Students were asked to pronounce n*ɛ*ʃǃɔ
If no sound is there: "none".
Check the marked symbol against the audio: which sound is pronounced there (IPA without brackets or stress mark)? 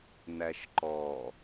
æ